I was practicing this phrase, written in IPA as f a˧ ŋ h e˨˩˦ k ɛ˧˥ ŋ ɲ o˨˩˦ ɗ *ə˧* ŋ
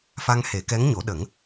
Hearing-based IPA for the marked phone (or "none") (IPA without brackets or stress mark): ə˨˩˦